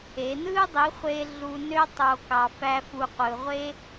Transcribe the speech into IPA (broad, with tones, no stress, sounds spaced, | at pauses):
e˨˦ n ɯ˦ dˤ i˨˦ χʷ e˧ ɮ u˧ n ø˦ tˤ o˧ k ɑ˧ f æ˦ f u˧ qʷ ɯ˧ ʁʷ e˦